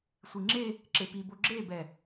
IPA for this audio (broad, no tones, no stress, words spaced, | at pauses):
sʷiŋ͡ǁe | ǁepibo ɡ͡ǁebɛ